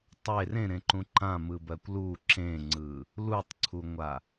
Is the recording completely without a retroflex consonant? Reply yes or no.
yes